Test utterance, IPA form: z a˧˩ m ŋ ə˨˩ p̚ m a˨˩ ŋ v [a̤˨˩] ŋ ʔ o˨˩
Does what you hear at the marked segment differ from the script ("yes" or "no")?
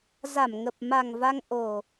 yes